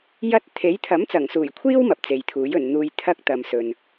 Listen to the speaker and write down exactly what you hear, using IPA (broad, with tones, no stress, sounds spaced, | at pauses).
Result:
j ɐ˧ t̚ t̪ʰ e˨˥ j t̪ʰ ɐ˨˥ m t͡s ɐ˨˩ ŋ s uː˨˩ j kʷʰ iː˧ w m ɐ˨ p̚ t͡s e˨ j t̪ʰ uː˨˥ j ɵ˨˩ n n̪ uː˨ j t̪ʰ ɐ˥ k̚ t̪ ɐ˨ m s ɵ˨ n